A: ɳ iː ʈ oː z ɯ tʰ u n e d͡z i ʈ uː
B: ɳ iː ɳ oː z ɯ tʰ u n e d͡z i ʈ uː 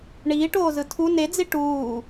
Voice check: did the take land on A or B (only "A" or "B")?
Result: A